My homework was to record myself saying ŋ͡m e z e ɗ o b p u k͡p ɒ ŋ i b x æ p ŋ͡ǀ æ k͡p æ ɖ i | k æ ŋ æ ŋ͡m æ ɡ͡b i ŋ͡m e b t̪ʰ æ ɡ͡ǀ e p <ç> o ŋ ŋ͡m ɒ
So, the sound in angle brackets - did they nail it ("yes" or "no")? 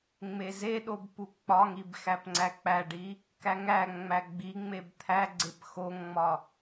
no